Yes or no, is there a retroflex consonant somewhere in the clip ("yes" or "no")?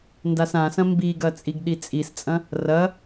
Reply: no